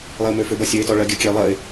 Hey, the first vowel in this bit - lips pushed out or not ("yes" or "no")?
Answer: no